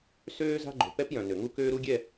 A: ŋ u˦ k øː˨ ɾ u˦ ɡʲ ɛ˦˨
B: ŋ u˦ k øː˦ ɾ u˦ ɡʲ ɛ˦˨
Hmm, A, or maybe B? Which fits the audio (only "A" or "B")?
B